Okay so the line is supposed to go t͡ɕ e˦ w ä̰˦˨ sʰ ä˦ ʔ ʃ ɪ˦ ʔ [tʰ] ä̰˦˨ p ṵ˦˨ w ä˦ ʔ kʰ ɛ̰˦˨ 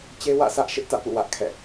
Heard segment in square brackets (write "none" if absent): t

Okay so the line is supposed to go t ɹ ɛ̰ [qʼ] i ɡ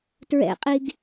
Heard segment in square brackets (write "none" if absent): qʼ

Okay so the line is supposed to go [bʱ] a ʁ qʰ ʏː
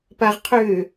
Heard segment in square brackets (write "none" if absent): p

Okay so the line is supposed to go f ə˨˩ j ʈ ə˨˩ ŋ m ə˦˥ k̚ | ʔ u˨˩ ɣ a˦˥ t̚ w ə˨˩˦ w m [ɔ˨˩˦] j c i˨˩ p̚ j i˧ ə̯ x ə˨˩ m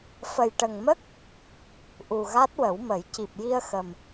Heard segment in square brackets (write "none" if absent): ə˨˩˦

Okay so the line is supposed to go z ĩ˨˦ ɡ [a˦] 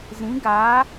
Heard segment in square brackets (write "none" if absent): a˨˦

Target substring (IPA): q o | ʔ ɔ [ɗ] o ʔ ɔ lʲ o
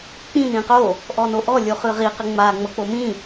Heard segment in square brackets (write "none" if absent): n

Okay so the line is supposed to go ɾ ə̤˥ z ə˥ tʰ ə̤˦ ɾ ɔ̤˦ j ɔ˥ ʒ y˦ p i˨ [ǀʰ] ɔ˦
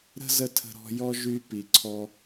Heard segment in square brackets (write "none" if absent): ǀʰ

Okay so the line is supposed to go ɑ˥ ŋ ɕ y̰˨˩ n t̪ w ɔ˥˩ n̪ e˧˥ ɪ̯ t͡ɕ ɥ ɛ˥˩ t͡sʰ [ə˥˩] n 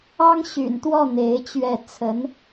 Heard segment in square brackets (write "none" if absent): ə˧˥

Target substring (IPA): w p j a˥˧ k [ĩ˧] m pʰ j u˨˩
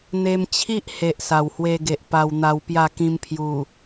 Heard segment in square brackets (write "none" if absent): ĩ˧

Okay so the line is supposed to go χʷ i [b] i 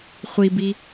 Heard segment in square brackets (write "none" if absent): b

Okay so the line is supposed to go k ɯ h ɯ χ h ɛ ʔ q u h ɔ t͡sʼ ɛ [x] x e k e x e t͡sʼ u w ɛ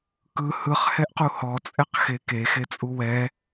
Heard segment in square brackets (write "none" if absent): q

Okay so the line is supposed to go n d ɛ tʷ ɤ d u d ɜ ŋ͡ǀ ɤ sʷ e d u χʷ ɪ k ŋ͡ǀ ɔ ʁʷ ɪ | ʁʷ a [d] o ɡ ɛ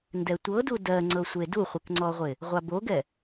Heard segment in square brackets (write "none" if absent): b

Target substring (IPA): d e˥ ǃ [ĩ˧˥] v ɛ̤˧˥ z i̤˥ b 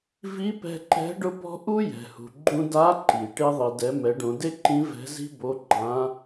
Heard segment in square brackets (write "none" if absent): ĩ˧˥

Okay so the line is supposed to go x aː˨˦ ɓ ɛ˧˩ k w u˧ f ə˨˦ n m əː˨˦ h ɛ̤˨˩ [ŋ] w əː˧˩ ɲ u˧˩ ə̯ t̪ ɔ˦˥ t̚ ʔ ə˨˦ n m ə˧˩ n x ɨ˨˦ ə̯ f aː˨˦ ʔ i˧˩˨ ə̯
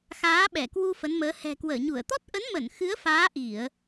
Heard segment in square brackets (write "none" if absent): k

